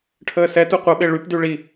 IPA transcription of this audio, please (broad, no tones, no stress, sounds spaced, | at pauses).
ʈʰ əː s ɛ t u qʷ ɛ ɓ e ɭ y p d y ɭ i